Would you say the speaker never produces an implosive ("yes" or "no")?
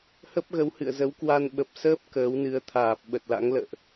no